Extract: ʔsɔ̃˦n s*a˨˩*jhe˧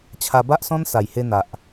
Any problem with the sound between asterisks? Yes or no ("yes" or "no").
no